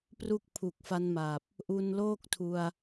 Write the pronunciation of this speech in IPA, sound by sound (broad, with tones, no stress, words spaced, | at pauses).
pru˥˩k̚pʰu˨˩k̚fa˦˥nma˨˩p̚ | ʔu˧nloː˥˩k̚tʰu˧a̯